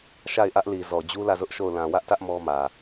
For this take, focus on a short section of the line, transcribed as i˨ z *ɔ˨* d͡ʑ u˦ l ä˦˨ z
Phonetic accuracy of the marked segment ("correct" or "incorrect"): correct